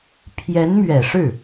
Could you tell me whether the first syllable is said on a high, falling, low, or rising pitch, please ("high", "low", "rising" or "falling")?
rising